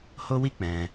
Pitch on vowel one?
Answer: high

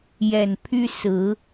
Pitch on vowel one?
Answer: low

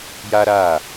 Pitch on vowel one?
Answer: high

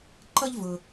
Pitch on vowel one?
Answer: high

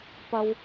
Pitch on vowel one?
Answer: high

